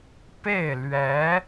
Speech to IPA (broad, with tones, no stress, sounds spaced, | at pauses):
p e˥˩ ɪ̯ l ɥ ɛ˧˥